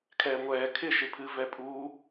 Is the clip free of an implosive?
yes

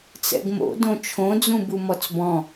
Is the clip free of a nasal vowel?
no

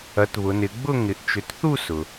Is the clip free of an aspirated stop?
yes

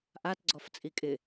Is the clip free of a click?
no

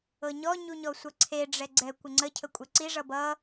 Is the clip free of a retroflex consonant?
no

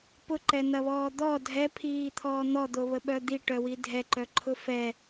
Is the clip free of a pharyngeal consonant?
yes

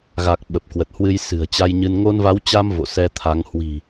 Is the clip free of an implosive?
no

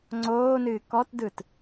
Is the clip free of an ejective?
yes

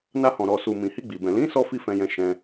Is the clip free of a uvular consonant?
yes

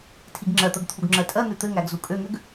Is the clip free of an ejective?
no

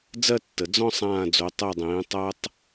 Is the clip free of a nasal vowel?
no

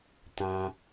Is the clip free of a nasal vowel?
no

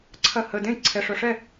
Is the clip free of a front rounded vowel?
no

